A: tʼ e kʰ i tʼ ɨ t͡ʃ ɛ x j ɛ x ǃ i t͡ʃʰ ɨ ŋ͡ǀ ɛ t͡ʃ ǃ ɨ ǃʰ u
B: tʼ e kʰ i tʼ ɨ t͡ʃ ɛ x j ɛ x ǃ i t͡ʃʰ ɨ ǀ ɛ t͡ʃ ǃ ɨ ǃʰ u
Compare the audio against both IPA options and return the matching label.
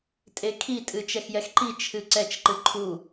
B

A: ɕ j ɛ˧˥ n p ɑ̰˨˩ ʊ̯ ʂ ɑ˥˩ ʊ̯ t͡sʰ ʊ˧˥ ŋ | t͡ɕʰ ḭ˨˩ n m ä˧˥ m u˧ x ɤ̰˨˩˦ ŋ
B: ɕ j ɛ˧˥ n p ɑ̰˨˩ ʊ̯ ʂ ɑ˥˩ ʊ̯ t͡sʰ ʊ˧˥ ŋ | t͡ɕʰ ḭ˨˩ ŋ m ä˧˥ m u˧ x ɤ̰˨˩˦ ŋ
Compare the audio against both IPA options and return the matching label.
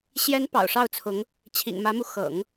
B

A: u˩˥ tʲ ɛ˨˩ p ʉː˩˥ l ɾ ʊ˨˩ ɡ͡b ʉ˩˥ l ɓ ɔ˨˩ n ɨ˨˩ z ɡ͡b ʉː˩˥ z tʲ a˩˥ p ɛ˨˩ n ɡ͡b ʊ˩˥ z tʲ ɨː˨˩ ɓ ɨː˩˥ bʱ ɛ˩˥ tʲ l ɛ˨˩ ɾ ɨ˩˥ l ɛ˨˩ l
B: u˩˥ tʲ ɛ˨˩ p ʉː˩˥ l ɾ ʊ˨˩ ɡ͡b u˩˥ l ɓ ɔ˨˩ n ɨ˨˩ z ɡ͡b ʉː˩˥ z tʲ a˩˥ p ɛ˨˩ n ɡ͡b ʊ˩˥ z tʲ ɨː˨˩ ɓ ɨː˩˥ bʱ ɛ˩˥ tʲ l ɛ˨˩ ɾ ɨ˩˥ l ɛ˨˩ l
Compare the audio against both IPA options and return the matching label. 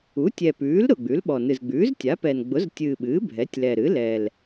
A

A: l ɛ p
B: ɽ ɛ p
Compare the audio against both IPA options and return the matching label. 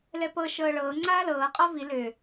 A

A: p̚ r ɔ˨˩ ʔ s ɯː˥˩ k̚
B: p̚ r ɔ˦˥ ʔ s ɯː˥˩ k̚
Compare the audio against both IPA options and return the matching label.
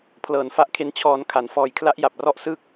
B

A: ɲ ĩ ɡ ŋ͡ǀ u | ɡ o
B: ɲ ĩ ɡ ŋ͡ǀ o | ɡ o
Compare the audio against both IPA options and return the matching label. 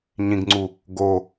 A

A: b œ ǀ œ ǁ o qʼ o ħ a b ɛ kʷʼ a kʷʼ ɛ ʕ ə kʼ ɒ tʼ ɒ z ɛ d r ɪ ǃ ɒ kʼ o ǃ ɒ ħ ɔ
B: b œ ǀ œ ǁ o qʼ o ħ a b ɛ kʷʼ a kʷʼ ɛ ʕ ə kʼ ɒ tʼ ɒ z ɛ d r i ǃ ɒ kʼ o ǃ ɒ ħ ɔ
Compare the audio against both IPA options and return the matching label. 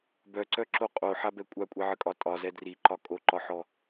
B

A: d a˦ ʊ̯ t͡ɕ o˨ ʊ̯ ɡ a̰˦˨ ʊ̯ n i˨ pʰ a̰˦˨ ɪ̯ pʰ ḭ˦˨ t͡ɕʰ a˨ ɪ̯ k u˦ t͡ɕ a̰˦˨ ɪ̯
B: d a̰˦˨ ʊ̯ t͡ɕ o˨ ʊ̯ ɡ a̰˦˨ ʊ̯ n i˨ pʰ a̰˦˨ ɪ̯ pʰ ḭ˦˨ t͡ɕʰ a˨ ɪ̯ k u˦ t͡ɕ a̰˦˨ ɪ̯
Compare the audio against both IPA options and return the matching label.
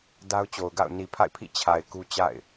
A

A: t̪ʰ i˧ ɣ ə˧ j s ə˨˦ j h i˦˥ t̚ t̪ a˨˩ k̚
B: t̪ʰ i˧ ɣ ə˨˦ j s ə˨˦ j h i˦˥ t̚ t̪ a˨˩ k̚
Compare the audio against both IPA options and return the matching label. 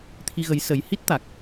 B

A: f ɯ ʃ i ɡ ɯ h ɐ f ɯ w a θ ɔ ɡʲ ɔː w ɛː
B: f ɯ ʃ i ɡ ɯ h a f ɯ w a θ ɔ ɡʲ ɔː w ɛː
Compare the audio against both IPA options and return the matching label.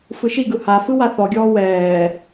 B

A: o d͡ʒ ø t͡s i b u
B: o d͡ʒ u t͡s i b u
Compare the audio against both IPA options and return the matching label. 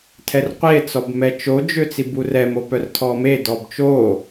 A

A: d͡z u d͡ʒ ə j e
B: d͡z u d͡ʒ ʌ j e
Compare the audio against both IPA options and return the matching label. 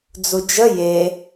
A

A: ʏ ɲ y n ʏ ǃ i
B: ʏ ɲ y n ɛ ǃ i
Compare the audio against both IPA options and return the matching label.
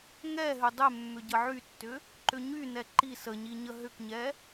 B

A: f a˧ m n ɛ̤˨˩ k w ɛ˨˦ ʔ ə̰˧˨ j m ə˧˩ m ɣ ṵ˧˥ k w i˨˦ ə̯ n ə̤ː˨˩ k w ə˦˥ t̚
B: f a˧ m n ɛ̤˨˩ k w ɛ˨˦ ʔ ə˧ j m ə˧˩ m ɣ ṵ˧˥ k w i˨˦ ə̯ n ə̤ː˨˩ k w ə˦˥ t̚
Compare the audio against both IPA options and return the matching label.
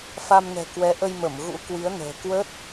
B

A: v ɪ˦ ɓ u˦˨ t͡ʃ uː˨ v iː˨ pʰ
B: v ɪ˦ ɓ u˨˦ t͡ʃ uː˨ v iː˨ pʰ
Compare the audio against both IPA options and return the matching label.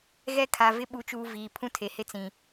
B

